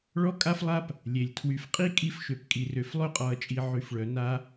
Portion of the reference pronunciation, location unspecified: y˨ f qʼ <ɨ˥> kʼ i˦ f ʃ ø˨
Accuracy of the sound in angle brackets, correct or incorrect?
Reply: incorrect